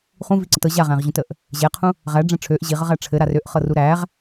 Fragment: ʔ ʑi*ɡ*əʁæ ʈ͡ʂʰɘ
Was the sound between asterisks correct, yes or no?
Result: no